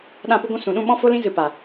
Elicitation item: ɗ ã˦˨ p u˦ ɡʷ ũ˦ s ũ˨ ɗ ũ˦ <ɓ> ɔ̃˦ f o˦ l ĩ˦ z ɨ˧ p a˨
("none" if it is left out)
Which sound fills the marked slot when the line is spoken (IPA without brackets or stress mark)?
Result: ɓ